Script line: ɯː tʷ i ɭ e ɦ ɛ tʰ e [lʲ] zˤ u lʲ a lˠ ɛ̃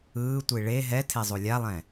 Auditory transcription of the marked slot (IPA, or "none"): none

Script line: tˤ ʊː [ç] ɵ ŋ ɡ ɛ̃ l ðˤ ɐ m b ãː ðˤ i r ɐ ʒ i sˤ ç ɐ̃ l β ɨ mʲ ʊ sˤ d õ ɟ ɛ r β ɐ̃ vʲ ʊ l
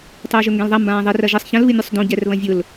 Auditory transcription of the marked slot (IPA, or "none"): ʒ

